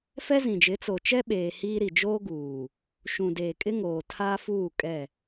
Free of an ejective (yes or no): no